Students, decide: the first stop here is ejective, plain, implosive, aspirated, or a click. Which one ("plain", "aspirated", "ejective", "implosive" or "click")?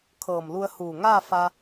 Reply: aspirated